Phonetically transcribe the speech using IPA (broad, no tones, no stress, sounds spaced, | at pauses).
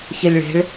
ç e lʲ ɭ e̤ ɭ